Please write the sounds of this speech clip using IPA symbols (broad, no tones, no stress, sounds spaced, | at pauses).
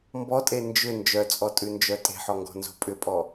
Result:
m b ɔ tʼ e n d͡ʒ ʏ n d͡ʒ œ t͡sʼ ɔ tʼ ʉ n d͡ʒ œ tʼ e̤ ħ ɔ ŋ ɡ ɔ̤ n z o̤ pʼ ʏ pʼ ɔ